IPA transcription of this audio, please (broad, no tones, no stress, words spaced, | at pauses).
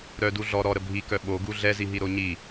ɾœ duɮɔ ɾɔɾə bʱikœ ɓo ɡuɮɛziɦi ɾoɲi